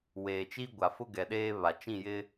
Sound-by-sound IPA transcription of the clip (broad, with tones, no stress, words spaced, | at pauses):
weː˨t͡ʃi˦ɡʷa˨fʊ˦ ɡɛ˨ɗeː˦βa˨ t͡ʃĩ˦˨jɪ˦